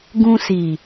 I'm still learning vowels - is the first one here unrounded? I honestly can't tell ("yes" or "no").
no